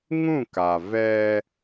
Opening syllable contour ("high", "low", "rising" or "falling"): falling